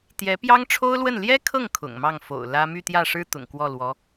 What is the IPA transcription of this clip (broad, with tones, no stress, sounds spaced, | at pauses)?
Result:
t̪ j ɛ˧˥ p j ɑ˥ ŋ ʈ͡ʂʰ o˥ ʊ̯ l w ə˥˩ n l j ɛ˥ kʰ ɤ˥˩ ŋ kʰ ʊ̰˨˩ ŋ m ɑ˥˩ ŋ f o̰˨˩ ʊ̯ l ä˥ m y˥˧ t̪ j ä˥˩ ʂ ɻ̩˥ t̪ ʊ̰˨˩ ŋ k w ɔ˥˩ l w ɔ˧˥